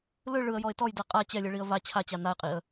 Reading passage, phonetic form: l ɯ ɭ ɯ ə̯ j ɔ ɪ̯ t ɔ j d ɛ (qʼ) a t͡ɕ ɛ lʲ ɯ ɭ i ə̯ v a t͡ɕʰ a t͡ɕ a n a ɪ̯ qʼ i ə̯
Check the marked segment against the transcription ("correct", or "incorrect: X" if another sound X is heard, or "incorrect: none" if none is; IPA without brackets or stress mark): correct